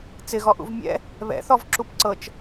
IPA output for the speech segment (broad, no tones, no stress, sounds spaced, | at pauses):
t͡s ɪ ɣ ɔ ʔ ṵ v mʲ ɛ̰ | β ɛ̰ θ ɔ v ǁ u p ǀ ɤ t͡ʃ